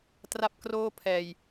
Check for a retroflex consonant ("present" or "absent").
absent